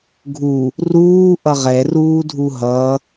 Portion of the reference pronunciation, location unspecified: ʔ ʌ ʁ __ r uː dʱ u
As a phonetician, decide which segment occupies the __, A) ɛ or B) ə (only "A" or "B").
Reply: A